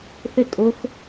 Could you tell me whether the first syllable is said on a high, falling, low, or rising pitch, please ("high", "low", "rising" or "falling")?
falling